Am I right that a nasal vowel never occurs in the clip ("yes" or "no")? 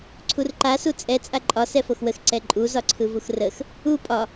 yes